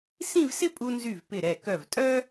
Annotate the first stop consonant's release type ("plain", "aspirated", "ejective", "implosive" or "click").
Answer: ejective